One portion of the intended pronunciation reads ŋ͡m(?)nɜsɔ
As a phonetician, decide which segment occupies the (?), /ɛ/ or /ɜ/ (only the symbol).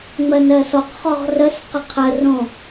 ɜ